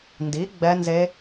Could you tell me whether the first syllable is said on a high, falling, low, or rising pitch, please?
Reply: rising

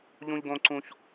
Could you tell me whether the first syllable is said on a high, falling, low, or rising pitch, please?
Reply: high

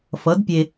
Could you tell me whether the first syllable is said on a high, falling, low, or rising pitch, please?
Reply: rising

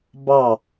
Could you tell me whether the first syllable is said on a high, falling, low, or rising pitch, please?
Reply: falling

